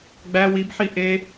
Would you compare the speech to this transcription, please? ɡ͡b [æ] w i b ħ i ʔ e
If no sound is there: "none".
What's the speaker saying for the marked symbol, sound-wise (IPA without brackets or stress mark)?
æ